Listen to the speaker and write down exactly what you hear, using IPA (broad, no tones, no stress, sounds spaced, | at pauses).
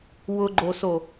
w ʊ ɡ͡ǃ o s o